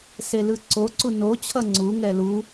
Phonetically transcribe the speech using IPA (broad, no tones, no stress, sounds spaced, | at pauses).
s e l ɯ ǀ o ǀ u n o t͡ɕʰ ʌ ŋ͡ǀ u ŋ ɛ l u